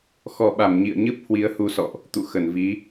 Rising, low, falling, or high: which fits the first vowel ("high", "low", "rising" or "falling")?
low